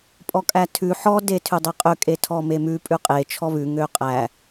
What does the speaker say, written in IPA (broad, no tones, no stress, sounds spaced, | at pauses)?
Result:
pʼ ɔ kʼ æ tʰ ʉ ħ ɔ d e tʰ ʉ dˤ e qʼ ø kʼ e tʰ ɔ m e m ʉ pʼ ʉ qʼ e t͡ʃʰ ɔ β ʉ ŋ ø qʼ æ